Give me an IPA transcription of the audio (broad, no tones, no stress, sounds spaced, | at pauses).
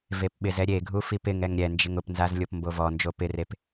v e p ɓ ɪ z ɛ ɾʲ e ɡʱ u f i p ɪ ŋ ɛ ŋ ɾʲ ɛ n d͡ʒ ɪ ŋ ʊ p n z a z lʲ o p m b o v ɔ n d͡ʒ o p ɪ r e p